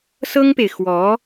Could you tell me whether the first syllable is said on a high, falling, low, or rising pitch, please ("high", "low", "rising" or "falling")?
high